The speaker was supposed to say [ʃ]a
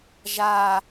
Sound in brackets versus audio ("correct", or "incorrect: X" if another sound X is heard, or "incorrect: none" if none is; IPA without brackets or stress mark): incorrect: ʒ